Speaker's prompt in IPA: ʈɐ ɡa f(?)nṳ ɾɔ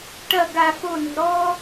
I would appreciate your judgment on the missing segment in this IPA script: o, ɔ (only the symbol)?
o